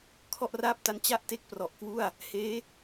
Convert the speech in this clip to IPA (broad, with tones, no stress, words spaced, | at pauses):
kʰɔ˥˩ʔraː˥˩p̚ta˦˥n t͡ɕa˥˩ʔ te˥˩k̚prɔ˨˩ʔkwu˥˩a̯ | heː˦˥